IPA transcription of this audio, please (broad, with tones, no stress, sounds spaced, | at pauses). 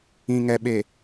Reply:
ĩ˨ ŋ ɛ˨ ɓ e˨